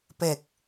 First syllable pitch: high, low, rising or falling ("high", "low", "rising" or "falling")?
low